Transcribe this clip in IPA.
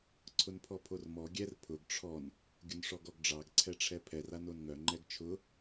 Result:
ǀʰ ʊ n pʰ ɔ pʰ o r m ɔ ɡʲ ɛ r pʰ ʊ ɡ ʈ͡ʂʰ ɔ n | ɡʲ ʊ n ʂ ɔ ɡ ɔ ɡ ɖ͡ʐ ɑ ɡ ǀʰ ɛ ʈ͡ʂʰ ɛ pʰ ɛ r a n o n ŋ œ ŋ͡ǃ ɛ ɡ t͡ʃʰ ʊ

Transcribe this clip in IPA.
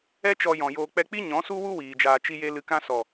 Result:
ɛ˦ t͡ʃ ɔ˧ j ɔ̃˨ j oː˧ k͡p ɛ˧ k͡p i˦ ɲ ɔ̃˨˦ s u˦ w u˦ w iː˨ d͡ʒ aː˧ t͡ʃ i˧ j e˧ l ɨ˧ k ã˦ s ɔ˨

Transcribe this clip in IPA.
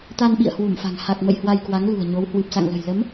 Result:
t̪ a˧ n ɓ ḭ˧˨ ə̯ h w u˧˩ m f a̤˨˩ ŋ h a˨˩ k̚ m ə̰˧˨ j h w a˧ j k w a˨˦ ŋ l ṳ˨˩ ə̯ ɲ o˨˦ w h w ɨ˨˩ p̚ s a̰˧˨ ŋ l ə̤˨˩ j l ə˨˦ m

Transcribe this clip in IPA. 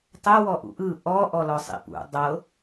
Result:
tˤ ɛ w ɔ ʔ ṵ ʔ ɯ ʔ ɔ ʔ ɔ l ɔ sˤ ḭ p ṵ dˤ ɤ

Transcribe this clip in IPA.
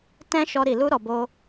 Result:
t ɛ̃˦ ʃ ɔ˧ ɾ i˨ l u˧ ɾ ɔ˨ b o˧

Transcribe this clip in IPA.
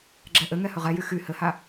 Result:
ɡ͡ǁ ɛ ʔ ɘ ŋ ɛ h ɵ ʁ ɛ j y x y h ɘ h a

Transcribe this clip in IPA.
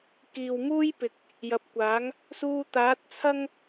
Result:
k iː˨ w m uː˥ j p ɪ˨ k̚ | j ɐ˨˥ p̚ kʷ aː˨˥ ŋ | s uː˧ t̪ aː˨˥ t̚ t͡sʰ ɐ˥ ŋ

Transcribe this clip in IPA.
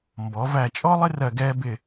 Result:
m b ɔ˩˧ v æ˧˩ t͡ʃʼ ɔ˥ lˠ ɪ˥ r ɜ˧˩ ɡ ɛː˧ b ɪ˧˩

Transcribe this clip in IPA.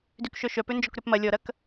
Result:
d y k ʃ œ ʃ œ p ø n d͡ʒ ɔ k ɾ ø p m ɐ lʲ ɔ ɾ ɐ k

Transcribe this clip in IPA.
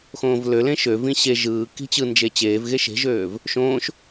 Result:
x õː v l ø l ẽ ʃ ø v ĩ ɕ e ʒ ɯː k i̤ t͡ɕ ɯ n d͡ʒ e t͡ɕ eː v ɣ e ʃ e̤ ʒ øː v | ʃ õː ʃ

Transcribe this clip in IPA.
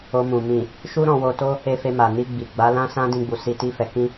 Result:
o˧ m ũ˨ m ĩ˨ | ʃ u˦ ɾ ɔ̃˧ w o˧ t o˦ | e˧ f e˧ m a˨ n i˧ ɡ͡b i˨ ɡ͡b a˨˦ l ã˦ s ã˦ d ĩ˧ ɡ͡b u˨ s i˧ t i˦ f ɛ˧ k ĩ˦

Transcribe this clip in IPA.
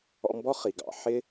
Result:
ɔ̰˦ m b ɔ˥ χ i˩ ɡ ɑ̰˩ ħ ɪ˥

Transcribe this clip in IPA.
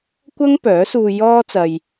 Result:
kʷ ɐ˥ ŋ p œː˨˥ s uː˧ j ɔː˥ t͡s ɐ˧ j

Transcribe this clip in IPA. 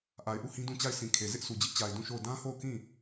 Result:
ʔ a˨ ɪ̯ ʔ u˦˨ h ĩ˦ d ũ˦˨ t͡ɕ a˦˨ ɪ̯ s ĩ˨ kʰ e˨ z ɪ˦ ʔ sʰ u˨ d͡ʑ ɪ˦ ʔ t͡ɕ a˨ ɪ̯ d ũ˦˨ ʃ o˦˨ ʊ̯ d ã˦ h o˦˨ ʊ̯ k ĩ˦˨

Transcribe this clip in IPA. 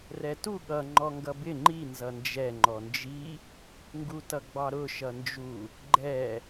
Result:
r ɛ t u ɠ ʌ ŋ͡ǃ ɔ ŋ ɡ ʌ b ɪ ŋ͡ǃ i n z ʌ n d͡ʒ ɛ ŋ͡ǃ ɔ n d͡ʒ i | ŋ ɡ u t ʌ ɡ͡b ɑ ɾ ʊ ʃ ʌ n d͡ʒ u | ɡ͡ǃ ɛ

